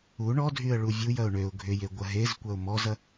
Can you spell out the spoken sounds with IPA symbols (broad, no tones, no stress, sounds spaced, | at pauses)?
u ɳ ɔ dʱ y ə̯ ɭ u vʲ u j ɐ ʊ̯ ɳ ø ʊ̯ ɡʱ ʏ j e ɡʷ ɐ ɦ e z kʷ ɐ ʊ̯ m ɔ z ɐ